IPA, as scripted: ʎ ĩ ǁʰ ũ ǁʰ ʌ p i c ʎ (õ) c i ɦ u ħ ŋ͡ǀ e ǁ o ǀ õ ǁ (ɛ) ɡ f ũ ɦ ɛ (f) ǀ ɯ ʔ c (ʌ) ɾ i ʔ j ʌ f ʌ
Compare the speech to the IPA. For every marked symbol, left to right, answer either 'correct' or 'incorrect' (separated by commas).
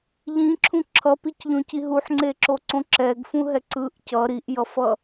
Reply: correct, correct, incorrect, correct